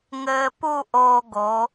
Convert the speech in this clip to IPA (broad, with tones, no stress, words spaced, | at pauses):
ŋɘː˧pu˥˧ ʔoː˧ɡo˩˧